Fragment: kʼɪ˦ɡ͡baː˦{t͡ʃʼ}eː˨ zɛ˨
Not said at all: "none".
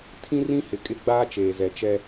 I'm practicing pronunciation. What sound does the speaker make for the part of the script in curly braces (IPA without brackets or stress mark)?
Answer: t͡ʃ